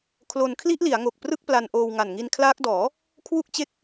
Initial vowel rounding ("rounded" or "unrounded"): rounded